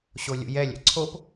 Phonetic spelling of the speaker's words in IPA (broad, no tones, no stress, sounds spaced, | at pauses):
ɕ o lʲ ṵ j ɛ lʲ ɛ̰ ǀʰ o p